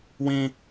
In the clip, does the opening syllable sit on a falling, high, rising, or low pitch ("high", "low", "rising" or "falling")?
high